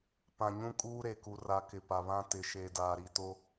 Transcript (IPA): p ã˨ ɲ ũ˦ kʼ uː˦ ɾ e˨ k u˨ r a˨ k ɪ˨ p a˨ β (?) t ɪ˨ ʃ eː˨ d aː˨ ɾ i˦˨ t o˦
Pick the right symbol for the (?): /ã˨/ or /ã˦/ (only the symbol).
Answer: ã˦